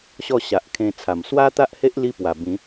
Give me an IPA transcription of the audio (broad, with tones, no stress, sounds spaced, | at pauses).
ɕ ɔ˥˧ ɕ a˨ ʔ kʰ ẽ˧ t͡sʰ a˨˩ m s w a˦ t̪ a˦ ʔ h e˦ ʔ l i˦ p w a˨˩ b ĩ˨˦